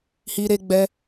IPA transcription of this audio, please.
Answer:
h i˦ ɾ e˦ ɡ͡b ɛ˦

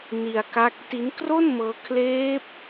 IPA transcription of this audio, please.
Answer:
n i˧ a̯ k a˦˥ k̚ t i˦˥ n k r o˥˩ n m ɤː˦˥ kʰ l eː˦˥ p̚

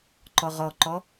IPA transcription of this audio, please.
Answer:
ǃ ɔ ʁ ɔ ǃ ɔ

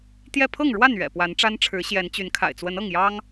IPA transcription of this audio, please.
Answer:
t̪ j ɛ˥˨ pʰ ɤ˥˨ ŋ ɻ w a˥˨ n ɥ ɛ̰˨˩ p w a˨˦ n ʈ͡ʂ a˦ n ʈ͡ʂʰ ɻ̩˨˦ ɕ j ɛ˨˦ n t͡ɕ y˨˦ n kʰ a̰˨˩ ɪ̯ t͡s w ə˨˦ n ɤ˥˨ ŋ j ɑ˦ ŋ

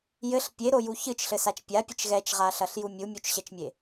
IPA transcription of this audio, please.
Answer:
j ɘ ɬ pʲ e ɾ o j u ç ɨ t͡ʃ ɬ ɘ s a t͡ʃ pʲ a pʲ ɘ t͡ʃ ɣ ɛ t͡ʃ ʁ a ɬ ɐ ɬ j u mʲ u mʲ u t͡ʃ ɕ ɛ t͡ʃ mʲ e

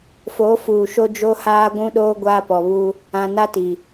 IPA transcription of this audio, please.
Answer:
f o˨˦ f uː˨ ʃ o˦ d͡ʒ o˦ h aː˦ ɡʷ ũ˦ ɗ oː˦ ɡʷ aː˦ p ɔ˨ β u˦ | ã˨ n a˦ t i˨

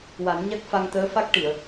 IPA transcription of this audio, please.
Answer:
w a˨˩˦ n ɲ a˦˥ k̚ f a˧ ŋ t̪ əː˧˥ f a˦˥ k̚ ʈ i˨˩˨ ə̯

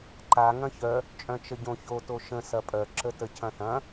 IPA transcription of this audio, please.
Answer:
ǃ a ŋ ɐ̃ ç œ | t͡ʃʼ œ̃ t͡ʃ ə ɟ õ ç o t o ʃ ə̃ s ɐ pʼ œ ǁ ə t ə cʰ ɐ̃ θ ɐ̃

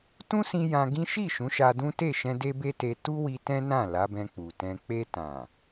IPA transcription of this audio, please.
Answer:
t ũ˦ s ĩ˧ j ã˧ ɡ ĩ˦ ʃ i˦˨ ʃ ũ˨˦ ʃ a˧ d ũ˦ t e˦˨ ʃ ɛ̃˧ d e˦ b e˦ t e˧ t u˦ w i˧ t ɛ̃˦ n ã˦˨ l a˨˦ b ɛ̃˧ k͡p u˨ t ɛ̃˧ k͡p e˧ t ã˨

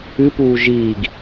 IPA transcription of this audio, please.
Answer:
ɨ p uː ʒ iː ɡ

